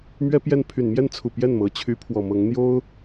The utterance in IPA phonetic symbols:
m ɥ ɛ˥ p j ɛ˥˩ n pʰ y˨˩ n m j ɛ˥˩ n t͡sʰ u˨˩ p j ɛ˥˩ n m ɤ˧˥ t͡ɕʰ y˧˥ pʰ w ɔ˨˩ m ɤ˧˥ ŋ n̪ j o˥ ʊ̯

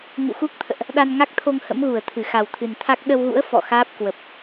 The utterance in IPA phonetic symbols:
ŋ ṵ˧˨ x u˦˥ k̚ t̪ʰ ə̰ː˧˨ ʔ | ɗ a˧ n ŋ a˦˥ k̚ t̪ʰ o˧ ŋ h ə̰˧˥ m ɣ u˧˩ ə̯ t̪ʰ ɨ˧˩ x a˨˩ w t̪ʰ ɨ˨˩ n t̪ʰ a˦˥ k̚ ɗ ə˧ w ɣ ṵ˧˥ ə̯ f ɔ̰˧˨ x aː˦˥ p̚ k w ə˨˩ p̚

